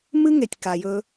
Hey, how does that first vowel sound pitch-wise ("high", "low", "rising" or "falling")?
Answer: high